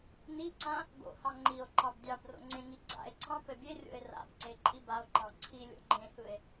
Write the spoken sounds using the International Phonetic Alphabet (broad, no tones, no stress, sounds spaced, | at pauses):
n i ǀ ã | ɡ o̰ h ɑ ŋ͡ǃ i o̯ ǃ ɑ b dʲ ɑ b r o̰ ŋ͡ǀ ẽ ŋ i ɡ͡ǀ a̰ e̯ ǀʰ ɑ̃ p ɘ bʲ e rʲ o̰ e̯ r a̰ b ǀ e ǃʼ i b a o̯ ǃ ɑ̃ ǀʰ i lʲ o̰ ɡ͡ǃ ẽ h ɯ e̯